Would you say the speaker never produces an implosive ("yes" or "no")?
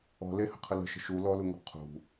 yes